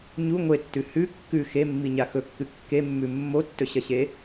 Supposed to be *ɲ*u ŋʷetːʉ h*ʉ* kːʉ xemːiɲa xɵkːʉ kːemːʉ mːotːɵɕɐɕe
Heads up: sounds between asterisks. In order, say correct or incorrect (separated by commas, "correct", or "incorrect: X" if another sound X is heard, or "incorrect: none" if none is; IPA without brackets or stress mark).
correct, correct